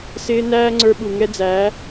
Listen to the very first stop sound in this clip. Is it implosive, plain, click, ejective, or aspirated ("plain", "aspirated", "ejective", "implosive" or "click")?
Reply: click